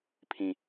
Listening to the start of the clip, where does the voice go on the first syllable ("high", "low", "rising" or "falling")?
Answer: low